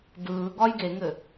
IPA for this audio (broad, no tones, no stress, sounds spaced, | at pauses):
d ɯː ɡ ɒ j ɡ e ŋ ɘ